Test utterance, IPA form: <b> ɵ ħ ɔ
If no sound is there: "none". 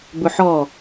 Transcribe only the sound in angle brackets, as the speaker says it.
b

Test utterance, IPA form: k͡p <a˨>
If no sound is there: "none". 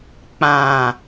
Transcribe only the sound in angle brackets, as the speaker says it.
ã˨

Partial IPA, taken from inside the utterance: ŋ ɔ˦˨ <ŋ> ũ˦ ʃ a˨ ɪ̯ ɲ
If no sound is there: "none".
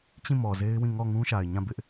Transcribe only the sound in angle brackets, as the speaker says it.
ŋ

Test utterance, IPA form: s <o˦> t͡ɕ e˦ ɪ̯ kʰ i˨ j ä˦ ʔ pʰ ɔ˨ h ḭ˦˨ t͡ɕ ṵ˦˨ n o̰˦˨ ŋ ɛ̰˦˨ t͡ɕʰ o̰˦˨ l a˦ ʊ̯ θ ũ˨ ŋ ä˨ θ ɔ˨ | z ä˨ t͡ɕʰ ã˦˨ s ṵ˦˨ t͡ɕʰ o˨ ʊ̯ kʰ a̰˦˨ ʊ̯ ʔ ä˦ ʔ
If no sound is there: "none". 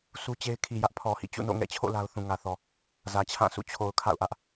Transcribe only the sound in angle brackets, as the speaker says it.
u˦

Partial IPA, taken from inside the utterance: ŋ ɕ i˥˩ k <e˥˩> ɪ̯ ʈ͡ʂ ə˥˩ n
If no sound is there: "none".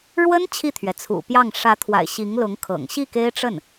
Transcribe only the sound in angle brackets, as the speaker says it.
e˥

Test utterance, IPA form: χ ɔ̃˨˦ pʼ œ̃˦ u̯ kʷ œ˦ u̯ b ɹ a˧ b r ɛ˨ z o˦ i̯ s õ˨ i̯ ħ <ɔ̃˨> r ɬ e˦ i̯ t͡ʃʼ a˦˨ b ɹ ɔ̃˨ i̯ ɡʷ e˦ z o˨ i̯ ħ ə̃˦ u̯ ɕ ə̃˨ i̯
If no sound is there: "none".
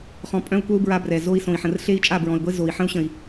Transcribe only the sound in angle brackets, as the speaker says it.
ə̃˨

